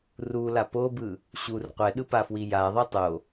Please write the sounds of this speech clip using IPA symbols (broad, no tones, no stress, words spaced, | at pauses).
rula pobɯ | ɕur qʷɛɗɯpafwi jaðˤi tˤo